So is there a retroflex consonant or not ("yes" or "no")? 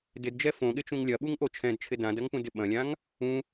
no